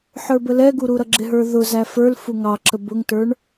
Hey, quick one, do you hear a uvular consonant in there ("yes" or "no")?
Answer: no